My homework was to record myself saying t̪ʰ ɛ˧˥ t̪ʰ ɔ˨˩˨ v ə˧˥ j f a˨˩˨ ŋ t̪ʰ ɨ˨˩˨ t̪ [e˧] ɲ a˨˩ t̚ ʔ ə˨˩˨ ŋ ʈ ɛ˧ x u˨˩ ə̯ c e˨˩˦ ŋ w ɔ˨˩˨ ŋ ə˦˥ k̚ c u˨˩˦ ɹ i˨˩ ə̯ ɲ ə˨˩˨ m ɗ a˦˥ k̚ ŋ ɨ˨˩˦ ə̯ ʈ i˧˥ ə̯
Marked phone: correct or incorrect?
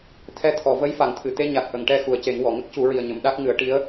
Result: correct